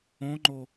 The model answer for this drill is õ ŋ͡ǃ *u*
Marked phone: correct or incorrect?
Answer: incorrect